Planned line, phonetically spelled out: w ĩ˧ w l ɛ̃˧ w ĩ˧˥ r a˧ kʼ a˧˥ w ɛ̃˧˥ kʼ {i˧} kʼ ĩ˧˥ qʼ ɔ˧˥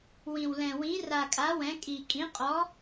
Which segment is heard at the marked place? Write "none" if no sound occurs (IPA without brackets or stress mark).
i˧